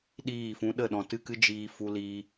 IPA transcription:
ɗiː˦˨fũ˧ ɗə˦˨ɗɔ̃˨ tɨ˦˨kɨ˦ d͡ʒiː˧ fu˧liː˧

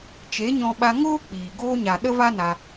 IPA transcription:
t͡ʃe˨˦ɲɔ̃˧ɓa˧ ŋoː˦k͡piː˨ ɡoː˧ɲa˨ ɗə˦va˦na˧

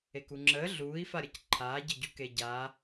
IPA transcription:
ekuŋ͡ǁəː ɮuːi̯faɾʲɐc ǃʰaːɟəɟu keɟaː

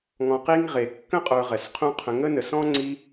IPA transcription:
ŋɔ̃˧qi˦ŋ ʁe˨kːə̃˦ qʼə˞˧ʁɛ˨sqʰũ˦qʰə̃˧ ŋə˦nə˨sɔ̃˦ ŋ͡ǀi˧

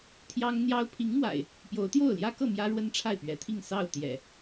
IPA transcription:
t̪ʰjɑ˦ŋn̪jɑ˦ʊ̯ pʰi˨˦ŋmwa̰˨˩ɪ̯ | pjo˨˦ʊ̯t̪jo˥˨ʊ̯ljä˦kɤ˥˨ mjä˦ɻwə˦nʈ͡ʂʰa˥˨ɪ̯ pɥɛ˨˦t̪ʰi˥˨ŋ sɑ˥˨ʊ̯t̪jɛ̰˨˩

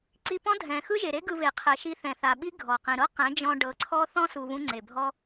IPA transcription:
ǀi˧pɔ̃˦ dʱɛ̃˨ xɯ˦ʒe˨ɾe˦ɡɯ˧ βe˨qʰɛ˨ ʃi˧θɛ̃˨ θa˨ɓi˦ ɡʱɔ˨qĩ˨ ɾɤ˦qɛ̃˨˦ d͡ʒɔ̃˧ɖɤ˨˦ǀʰɔ˦ θɔ̃˦su˨ βũ˦ŋ͡ǀe˨bʱɔ˦

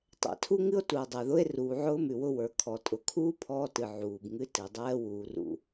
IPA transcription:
tˤɛ̰˨tʰu˦ŋɨ˦o̯ tu˨o̯dˤɛ˨ðʊ˦e̯ ruː˨ʕʊː˦mʉ˨wʊ˦ wə˞˨ kʰɔ˨ tʼʊ˨kʰuː˦ pʰɔː˦tɨ˨ ʕuː˨bŋɨ˦ tɨ˨ dˤɛː˦wuː˨rṵ˨

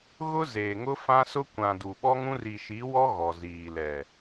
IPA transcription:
ɣʊ˦zeː˨ŋʊ˦ fã˦sʊ˦kʷã˨ du˨ɓɔ˦ŋũ˦r i˨ʃi˨˦wɔ˦ ɣɔ˨ziː˨lɛ˨

